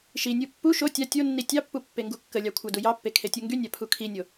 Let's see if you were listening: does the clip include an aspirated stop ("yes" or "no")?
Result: yes